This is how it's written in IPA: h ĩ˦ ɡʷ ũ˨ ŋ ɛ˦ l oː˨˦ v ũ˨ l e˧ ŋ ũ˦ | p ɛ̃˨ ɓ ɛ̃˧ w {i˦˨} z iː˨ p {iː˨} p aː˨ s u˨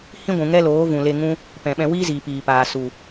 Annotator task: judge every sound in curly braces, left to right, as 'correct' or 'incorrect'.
incorrect, correct

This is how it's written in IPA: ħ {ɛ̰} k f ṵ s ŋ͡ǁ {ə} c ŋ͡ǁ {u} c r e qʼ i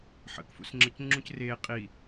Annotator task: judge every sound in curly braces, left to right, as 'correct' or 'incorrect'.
incorrect, correct, incorrect

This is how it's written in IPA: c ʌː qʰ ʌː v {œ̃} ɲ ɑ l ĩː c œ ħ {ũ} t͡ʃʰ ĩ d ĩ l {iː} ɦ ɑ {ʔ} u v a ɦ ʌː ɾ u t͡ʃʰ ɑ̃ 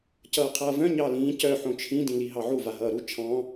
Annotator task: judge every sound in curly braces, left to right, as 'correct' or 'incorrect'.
correct, incorrect, incorrect, incorrect

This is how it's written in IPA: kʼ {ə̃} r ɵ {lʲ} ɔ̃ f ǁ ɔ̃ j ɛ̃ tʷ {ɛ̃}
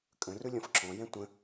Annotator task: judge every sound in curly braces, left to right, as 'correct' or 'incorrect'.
correct, correct, incorrect

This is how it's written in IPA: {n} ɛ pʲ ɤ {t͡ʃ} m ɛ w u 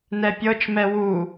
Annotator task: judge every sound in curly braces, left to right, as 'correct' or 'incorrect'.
correct, correct

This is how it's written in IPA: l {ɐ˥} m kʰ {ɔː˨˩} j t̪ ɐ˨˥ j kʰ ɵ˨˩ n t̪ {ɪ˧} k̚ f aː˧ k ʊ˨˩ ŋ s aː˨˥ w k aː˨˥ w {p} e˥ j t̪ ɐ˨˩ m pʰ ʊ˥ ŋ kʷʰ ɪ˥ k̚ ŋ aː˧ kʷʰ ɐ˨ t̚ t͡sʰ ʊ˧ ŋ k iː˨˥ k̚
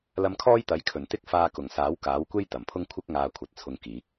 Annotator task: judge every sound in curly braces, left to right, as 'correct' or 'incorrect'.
incorrect, incorrect, incorrect, incorrect

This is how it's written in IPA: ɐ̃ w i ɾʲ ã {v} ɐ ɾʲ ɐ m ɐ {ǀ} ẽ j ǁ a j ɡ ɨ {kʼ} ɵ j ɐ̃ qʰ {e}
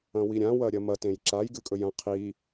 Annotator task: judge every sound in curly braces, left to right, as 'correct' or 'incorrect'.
incorrect, incorrect, correct, incorrect

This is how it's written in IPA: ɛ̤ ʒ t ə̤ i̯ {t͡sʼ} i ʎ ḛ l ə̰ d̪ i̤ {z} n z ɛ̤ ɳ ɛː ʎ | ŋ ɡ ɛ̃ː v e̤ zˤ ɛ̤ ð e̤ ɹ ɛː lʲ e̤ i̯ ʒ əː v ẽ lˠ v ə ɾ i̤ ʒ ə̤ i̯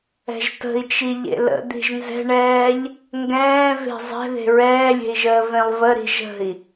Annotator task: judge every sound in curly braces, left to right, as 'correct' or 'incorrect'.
incorrect, incorrect

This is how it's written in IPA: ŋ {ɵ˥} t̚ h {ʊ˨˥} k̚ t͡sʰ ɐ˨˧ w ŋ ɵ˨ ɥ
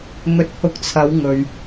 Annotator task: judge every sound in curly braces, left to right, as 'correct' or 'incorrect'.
incorrect, incorrect

